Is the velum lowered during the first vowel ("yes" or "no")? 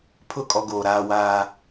no